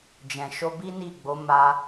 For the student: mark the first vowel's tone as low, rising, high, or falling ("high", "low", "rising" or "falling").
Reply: low